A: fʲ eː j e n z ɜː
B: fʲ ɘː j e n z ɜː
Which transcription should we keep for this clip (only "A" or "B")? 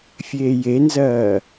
A